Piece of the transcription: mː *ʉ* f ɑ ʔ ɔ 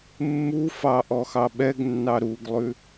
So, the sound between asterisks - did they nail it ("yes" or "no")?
no